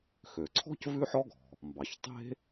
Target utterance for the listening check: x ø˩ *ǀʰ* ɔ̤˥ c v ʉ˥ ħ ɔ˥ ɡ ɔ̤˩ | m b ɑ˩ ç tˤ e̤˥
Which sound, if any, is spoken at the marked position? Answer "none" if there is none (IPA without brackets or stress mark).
ǀʰ